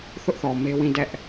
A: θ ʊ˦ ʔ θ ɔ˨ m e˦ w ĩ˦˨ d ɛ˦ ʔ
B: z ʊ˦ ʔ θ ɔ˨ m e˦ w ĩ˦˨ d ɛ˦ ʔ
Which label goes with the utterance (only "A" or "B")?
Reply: A